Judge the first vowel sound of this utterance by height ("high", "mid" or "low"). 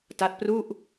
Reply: low